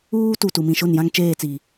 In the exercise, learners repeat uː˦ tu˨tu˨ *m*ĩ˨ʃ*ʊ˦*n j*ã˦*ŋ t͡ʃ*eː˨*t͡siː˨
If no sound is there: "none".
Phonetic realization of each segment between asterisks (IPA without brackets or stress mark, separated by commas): m, ʊ˦˨, ã˦, eː˦˨